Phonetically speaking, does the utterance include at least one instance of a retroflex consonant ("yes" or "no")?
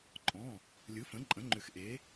no